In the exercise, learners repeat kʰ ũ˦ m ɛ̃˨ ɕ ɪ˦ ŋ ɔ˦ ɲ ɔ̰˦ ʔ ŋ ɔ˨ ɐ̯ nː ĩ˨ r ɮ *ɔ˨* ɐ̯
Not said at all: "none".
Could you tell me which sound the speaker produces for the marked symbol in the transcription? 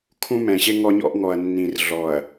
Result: ɔ˨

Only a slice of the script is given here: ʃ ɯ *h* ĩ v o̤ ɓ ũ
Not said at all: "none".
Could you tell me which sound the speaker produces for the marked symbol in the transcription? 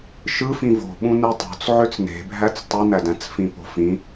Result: f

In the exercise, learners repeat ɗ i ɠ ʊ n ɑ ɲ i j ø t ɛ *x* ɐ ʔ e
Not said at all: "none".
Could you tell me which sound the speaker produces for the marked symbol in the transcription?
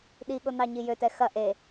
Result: x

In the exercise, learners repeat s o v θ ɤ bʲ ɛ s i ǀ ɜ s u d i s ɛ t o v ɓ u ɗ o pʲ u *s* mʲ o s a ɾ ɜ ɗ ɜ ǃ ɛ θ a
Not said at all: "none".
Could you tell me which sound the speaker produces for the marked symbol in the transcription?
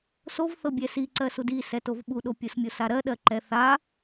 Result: s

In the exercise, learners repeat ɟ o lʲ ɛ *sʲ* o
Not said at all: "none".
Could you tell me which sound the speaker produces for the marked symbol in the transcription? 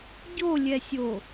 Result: sʲ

